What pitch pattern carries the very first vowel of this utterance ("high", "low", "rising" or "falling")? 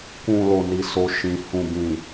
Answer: low